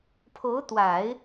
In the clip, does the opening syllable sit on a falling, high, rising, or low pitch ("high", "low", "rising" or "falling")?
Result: rising